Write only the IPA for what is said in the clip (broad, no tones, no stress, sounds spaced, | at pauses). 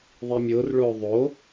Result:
ðˤ i mʲ ʊː r ɭ ʊː ðˤ o